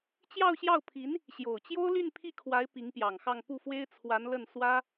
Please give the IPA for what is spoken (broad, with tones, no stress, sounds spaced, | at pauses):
t͡ɕ j ɑ˥˧ ʊ̯ ɕ j ɑ˥˩ ʊ̯ pʰ i˧˥ n | ɕ j o˨˩ ʊ̯ t͡ɕ j o˥ ʊ̯ l y˥˧ n pʰ i˥˩ kʰ w a˧˥ ɪ̯ p i˧˥ ŋ p j ɑ˨˩ ŋ x ɑ˥˧ ŋ p u˥˩ f w e˥ ɪ̯ t͡sʰ w a˧˥ n l ə˥˩ n s w ä˥